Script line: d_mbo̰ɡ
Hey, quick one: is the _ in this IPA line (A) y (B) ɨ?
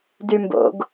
A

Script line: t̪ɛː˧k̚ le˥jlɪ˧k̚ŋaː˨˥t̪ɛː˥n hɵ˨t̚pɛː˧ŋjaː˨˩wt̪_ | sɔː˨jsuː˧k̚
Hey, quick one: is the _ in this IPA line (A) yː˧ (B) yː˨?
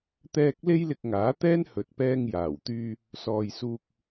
A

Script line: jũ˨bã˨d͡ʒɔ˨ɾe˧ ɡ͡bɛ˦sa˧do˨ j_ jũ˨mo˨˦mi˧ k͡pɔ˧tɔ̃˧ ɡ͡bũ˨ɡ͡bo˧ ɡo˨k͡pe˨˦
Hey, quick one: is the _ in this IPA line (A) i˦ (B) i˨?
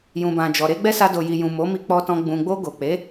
B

